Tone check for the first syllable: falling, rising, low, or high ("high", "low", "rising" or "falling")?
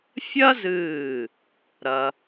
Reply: high